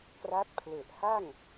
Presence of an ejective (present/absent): absent